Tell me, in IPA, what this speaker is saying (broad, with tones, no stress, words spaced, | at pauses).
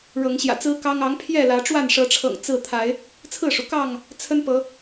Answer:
ɻɤ˨˦ŋɕjä̰˨˩t͡sɹ̩˦kɑ˦ŋ ɑ˨˦ŋ pʰjɛ˥˨lä˨˦ ʈ͡ʂwa˥˨nʂɤ˨˦ʈ͡ʂʰɤ̰˨˩ŋ t͡sɹ̩˥˨ t̪ʰa˨˦ɪ̯ | t͡sʰɹ̩˥˨ʂu˩kɑ˥˨ŋ | t͡sʰə˦npɤ˨˦